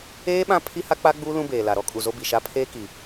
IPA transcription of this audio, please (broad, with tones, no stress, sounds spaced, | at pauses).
eː˦ ɓ ã˦ pʰ i˦ h a˦ k͡p a˦ ɡ͡b uː˦ l ũ˦ b eː˨ l a˨ ɾ ɔ˦ kʼ u˨ z o˦ b i˨ ʃ a˦ pʰ eː˦ k i˨